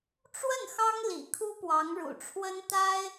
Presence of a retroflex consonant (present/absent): present